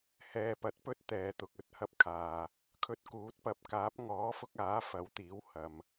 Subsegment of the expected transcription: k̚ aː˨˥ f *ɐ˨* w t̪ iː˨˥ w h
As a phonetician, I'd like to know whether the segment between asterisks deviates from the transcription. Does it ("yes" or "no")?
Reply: yes